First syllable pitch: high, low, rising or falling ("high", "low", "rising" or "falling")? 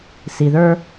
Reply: low